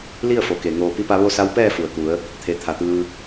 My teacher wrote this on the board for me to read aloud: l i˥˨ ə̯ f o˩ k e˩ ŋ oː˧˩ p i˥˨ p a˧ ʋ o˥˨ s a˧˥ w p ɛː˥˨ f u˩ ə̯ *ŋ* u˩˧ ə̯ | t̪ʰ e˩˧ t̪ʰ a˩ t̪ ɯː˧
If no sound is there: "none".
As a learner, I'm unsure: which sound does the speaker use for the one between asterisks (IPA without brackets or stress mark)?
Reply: k